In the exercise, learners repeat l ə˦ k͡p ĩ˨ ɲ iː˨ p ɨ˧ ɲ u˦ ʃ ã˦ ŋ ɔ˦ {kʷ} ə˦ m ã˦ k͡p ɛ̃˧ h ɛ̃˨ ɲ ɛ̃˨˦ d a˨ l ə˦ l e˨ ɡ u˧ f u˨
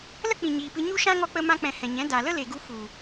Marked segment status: incorrect: k͡p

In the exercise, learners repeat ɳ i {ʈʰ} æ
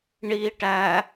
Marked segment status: incorrect: ʈ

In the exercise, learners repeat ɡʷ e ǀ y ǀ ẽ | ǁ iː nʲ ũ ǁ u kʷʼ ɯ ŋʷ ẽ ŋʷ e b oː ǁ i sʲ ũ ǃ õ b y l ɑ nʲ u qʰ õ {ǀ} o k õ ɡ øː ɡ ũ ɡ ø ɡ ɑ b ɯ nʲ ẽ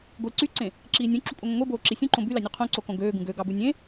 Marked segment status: correct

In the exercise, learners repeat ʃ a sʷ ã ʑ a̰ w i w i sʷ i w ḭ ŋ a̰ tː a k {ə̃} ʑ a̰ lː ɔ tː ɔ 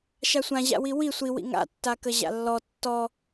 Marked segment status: incorrect: ə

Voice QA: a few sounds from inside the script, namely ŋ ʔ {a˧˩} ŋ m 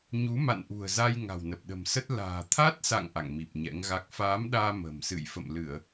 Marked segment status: incorrect: a̰˧˨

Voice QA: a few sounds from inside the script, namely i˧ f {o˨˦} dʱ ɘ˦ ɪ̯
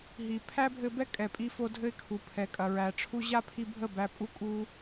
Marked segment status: incorrect: o˧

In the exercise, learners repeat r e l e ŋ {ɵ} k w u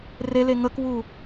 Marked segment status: incorrect: ə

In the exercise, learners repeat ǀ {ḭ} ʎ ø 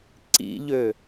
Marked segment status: correct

